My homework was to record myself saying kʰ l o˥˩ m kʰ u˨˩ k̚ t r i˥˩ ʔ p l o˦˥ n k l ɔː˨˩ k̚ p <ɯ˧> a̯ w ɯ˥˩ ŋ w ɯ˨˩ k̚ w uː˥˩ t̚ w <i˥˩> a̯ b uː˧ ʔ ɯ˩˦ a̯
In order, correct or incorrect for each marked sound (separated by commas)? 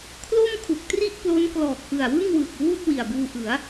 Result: incorrect, incorrect